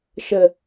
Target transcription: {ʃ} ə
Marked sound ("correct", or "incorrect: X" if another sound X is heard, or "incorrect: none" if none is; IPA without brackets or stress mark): correct